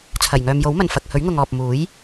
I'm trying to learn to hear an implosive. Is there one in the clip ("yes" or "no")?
no